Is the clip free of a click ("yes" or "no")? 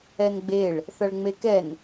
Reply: yes